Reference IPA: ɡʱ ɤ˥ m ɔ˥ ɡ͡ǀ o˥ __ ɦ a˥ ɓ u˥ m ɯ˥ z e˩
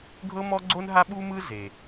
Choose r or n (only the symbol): n